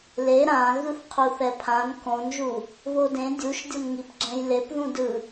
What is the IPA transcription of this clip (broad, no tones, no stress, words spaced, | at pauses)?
le ɾã ɣɯθqʰuθɛpʰãn kõnʒu | βodẽ dʲuʃdʲʌnŋip ɡ͡ǁɛ̃jlepðũ dɯ